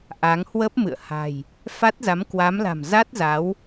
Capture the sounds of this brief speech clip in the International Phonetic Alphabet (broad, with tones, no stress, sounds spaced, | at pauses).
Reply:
ʔ a˨˦ ŋ h w ə˦˥ p̚ m ɨ̰˧˨ ə̯ h a̤˨˩ j | f a˦˥ t̚ z a˨˦ m k w a˨˦ m l a̤˨˩ m z a˦˥ t̚ z a˨˦ w